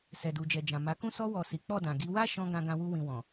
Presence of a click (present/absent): absent